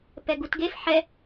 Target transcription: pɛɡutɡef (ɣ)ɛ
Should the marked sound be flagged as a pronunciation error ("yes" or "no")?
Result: yes